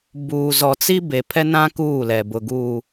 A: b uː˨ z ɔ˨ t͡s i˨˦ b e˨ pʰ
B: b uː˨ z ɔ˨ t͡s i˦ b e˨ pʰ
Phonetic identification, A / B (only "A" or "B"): B